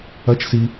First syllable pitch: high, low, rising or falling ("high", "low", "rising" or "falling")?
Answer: rising